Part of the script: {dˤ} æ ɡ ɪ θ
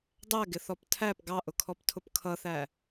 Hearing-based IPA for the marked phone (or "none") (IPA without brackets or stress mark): dˤ